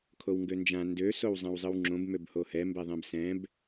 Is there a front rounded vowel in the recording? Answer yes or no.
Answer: yes